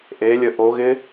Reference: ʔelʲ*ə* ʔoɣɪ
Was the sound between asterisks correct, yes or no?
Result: yes